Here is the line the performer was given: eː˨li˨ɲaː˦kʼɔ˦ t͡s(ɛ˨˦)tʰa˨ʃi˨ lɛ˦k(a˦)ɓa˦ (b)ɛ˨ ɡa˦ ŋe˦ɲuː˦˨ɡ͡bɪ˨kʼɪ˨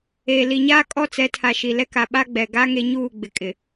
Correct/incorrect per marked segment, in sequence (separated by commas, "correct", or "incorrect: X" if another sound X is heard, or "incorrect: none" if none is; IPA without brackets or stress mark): correct, incorrect: a˨, incorrect: ɡ͡b